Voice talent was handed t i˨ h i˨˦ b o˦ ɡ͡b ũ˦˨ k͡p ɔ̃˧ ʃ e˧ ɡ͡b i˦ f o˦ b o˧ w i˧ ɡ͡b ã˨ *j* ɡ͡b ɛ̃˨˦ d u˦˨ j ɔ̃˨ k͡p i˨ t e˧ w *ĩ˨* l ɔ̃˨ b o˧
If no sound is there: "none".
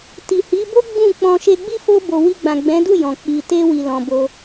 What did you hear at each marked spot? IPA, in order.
none, i˨

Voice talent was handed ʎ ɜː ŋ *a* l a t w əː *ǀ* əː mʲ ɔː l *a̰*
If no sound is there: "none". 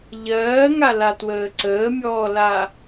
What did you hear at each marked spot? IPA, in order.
a, ǀ, a

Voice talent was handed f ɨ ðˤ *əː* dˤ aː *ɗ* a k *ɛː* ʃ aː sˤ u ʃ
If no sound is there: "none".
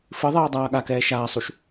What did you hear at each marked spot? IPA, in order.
ɛː, ɠ, ɛː

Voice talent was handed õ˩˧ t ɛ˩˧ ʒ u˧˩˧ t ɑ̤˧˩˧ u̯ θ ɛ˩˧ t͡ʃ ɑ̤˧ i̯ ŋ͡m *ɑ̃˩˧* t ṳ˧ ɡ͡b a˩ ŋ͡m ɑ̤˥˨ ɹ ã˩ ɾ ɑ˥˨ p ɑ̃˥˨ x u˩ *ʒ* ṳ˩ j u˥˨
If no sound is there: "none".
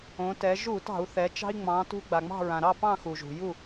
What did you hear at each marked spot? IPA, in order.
ɑ̃˩˧, ʒ

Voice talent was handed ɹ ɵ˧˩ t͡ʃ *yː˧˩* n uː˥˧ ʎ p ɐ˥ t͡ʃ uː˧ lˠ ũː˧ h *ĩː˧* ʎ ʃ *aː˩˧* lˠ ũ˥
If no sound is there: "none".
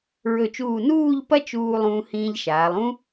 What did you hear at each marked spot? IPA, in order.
uː˧˩, ĩː˧, aː˩˧

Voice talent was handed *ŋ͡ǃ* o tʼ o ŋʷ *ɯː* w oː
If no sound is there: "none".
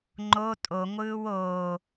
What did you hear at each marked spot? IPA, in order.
ŋ͡ǃ, ɯː

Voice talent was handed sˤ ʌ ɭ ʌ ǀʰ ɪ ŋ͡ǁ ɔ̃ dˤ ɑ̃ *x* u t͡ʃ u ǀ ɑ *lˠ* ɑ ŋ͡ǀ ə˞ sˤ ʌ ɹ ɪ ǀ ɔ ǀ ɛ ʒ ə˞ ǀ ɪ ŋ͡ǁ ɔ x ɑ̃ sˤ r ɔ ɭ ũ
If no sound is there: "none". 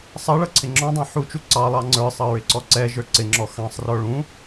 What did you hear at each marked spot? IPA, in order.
ħ, lˠ

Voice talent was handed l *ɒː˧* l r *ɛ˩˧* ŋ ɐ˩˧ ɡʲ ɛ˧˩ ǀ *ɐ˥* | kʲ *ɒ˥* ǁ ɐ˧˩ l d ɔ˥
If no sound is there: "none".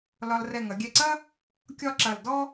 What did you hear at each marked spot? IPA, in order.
ɒ˧, ɛ˧˩, ɐ˥, ɒ˥

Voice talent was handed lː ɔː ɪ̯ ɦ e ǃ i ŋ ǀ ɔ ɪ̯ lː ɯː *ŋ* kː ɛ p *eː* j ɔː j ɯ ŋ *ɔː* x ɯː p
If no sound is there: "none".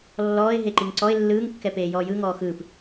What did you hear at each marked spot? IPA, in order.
ŋ, eː, ɔː

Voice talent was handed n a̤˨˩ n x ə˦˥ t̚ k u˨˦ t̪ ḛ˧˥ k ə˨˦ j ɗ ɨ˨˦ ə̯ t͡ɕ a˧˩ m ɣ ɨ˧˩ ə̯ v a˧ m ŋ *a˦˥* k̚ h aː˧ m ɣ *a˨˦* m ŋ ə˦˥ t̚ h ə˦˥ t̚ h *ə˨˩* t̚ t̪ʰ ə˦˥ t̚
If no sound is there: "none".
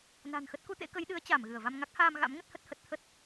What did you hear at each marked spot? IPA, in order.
a˦˥, a̰˧˥, ə˨˩

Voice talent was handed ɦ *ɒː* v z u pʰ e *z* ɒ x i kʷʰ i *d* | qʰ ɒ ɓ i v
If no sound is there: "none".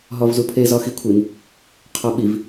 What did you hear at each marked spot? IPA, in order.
ɒ, z, n

